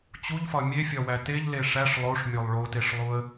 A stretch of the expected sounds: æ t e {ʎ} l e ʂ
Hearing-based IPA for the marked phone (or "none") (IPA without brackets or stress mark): ʎ